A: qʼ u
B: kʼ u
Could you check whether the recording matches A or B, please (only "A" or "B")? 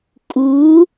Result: B